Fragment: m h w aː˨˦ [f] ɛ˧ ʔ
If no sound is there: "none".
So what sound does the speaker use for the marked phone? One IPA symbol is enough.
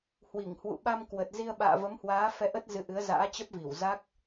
f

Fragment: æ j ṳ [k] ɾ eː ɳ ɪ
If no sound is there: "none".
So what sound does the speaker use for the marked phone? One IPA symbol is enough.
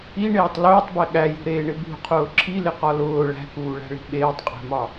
none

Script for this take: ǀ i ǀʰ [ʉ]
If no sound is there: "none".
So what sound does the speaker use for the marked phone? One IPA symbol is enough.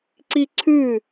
ʉ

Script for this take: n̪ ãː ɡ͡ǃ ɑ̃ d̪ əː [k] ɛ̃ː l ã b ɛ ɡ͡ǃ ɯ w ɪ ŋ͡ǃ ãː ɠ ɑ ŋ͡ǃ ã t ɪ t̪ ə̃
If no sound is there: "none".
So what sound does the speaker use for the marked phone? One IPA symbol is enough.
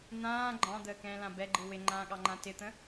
k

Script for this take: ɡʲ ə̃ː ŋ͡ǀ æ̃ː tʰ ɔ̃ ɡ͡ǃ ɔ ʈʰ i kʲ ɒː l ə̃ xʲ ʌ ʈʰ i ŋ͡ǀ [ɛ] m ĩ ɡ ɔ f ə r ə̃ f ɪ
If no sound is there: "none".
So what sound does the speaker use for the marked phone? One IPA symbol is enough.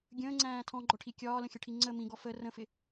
ə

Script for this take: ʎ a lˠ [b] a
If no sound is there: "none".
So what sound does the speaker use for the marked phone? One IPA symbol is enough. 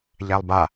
b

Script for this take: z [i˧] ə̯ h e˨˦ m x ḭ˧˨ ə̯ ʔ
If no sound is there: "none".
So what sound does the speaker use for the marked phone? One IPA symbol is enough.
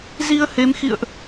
i˧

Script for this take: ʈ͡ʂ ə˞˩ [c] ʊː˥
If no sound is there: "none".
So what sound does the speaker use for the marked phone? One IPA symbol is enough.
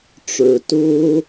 t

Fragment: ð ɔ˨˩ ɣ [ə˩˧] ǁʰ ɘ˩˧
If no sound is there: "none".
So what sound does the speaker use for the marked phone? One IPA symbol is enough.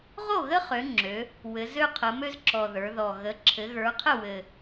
ə˩˧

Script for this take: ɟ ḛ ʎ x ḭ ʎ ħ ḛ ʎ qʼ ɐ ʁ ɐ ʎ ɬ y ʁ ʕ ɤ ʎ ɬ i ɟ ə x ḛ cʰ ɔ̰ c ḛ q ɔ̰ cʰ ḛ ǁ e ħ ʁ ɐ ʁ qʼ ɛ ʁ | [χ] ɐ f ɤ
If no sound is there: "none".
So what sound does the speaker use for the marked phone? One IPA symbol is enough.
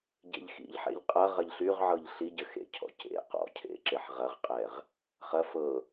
χ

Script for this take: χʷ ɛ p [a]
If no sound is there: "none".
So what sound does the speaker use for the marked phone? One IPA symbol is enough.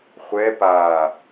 a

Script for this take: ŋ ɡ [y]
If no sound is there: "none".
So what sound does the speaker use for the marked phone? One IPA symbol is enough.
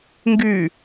y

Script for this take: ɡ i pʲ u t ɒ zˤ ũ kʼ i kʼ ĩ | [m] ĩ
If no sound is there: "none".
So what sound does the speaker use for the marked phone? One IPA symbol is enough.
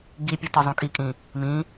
m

